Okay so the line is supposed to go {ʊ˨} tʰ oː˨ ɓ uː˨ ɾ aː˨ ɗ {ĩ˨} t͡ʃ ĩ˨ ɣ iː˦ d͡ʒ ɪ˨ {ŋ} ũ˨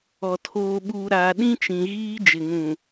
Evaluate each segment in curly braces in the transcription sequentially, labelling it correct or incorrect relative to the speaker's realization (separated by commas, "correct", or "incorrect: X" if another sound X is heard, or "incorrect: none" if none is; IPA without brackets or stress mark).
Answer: incorrect: ɔ˨, incorrect: ĩ˦, correct